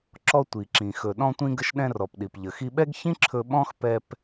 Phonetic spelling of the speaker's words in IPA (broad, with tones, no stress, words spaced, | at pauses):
ǁɔ˧tʷi˩ǁĩ˩ xɵ˩ ɗɔ̃˧tʷĩ˧ ɡə˧ʃɗɛ̃˧rɔ˩pɗi˩p ʎə˩xi˧ɓɛ˥ɡçĩ˥ ǁʰɵ˧ɓɔ̃˥x pɛ˧p